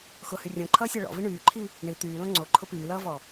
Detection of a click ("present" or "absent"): present